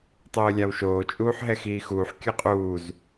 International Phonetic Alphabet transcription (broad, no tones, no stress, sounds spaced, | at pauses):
tˤ ɯː lʲ a w ʃ oː t͡ʃʼ uː ħ ɦ ɛ x iː x uː ħ kʲ ɯ qʼ uː z